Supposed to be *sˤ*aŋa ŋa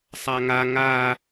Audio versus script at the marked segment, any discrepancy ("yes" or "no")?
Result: no